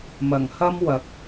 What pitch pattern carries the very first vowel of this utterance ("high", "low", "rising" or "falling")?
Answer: low